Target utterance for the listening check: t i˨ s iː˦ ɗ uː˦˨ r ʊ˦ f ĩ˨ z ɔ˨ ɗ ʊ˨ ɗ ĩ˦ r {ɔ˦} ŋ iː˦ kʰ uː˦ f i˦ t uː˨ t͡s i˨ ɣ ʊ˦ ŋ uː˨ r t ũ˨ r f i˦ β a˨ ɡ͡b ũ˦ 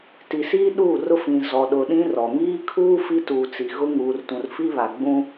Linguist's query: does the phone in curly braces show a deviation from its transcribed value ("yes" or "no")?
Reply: yes